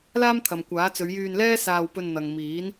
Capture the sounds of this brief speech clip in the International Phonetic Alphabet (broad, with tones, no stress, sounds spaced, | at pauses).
l aː˥ m t̪ʰ ɐ˨ m kʷ aː˨˥ t͡s ɵ˨˧ ɥ j yː˧ n l ɛː˥ s aː˧ w p ɵ˧ n n̪ ɐ˨ ŋ m iː˨˥ n